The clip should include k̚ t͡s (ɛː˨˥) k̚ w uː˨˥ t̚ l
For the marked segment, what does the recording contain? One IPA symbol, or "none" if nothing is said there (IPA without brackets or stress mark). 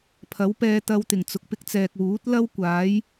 ɛː˨